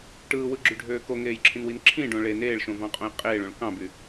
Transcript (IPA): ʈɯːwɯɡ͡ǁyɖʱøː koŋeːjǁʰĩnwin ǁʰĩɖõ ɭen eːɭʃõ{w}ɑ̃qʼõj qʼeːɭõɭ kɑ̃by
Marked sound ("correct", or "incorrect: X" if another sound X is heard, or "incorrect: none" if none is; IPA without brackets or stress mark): incorrect: v